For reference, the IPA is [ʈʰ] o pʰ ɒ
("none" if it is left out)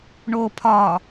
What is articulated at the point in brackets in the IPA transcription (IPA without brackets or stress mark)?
ɳ